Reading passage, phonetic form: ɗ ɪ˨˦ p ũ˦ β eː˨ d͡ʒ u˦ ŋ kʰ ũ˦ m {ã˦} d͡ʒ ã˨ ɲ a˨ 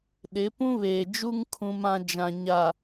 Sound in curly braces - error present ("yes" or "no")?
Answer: no